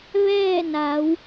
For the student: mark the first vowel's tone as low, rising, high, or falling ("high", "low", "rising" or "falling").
falling